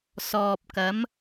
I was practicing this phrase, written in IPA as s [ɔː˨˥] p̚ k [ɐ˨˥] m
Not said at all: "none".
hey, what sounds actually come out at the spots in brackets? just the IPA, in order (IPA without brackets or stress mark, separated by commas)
ɔː˨, ɐ˨˥